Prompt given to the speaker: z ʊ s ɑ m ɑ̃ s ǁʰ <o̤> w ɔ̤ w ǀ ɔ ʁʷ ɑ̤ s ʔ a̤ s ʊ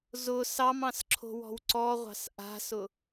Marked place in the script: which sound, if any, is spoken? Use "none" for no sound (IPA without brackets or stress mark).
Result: o̤